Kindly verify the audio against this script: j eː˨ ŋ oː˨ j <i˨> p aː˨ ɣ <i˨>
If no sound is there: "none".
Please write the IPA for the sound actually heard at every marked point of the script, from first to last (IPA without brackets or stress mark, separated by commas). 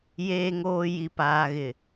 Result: i˨, ɪ˨